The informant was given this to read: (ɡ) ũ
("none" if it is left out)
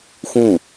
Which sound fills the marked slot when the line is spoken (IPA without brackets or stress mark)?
x